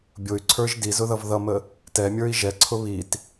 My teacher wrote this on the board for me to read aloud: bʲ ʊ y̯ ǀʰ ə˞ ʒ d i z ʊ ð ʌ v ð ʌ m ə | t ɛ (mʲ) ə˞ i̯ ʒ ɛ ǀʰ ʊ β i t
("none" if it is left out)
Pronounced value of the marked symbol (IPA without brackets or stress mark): mʲ